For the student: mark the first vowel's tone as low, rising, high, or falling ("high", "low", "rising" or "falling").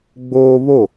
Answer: high